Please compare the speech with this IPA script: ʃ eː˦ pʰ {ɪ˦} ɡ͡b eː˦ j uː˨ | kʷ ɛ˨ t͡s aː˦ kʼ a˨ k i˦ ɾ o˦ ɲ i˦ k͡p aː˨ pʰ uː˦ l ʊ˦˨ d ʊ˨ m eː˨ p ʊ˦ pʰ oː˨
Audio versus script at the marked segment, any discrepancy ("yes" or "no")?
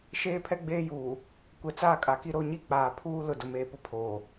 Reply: yes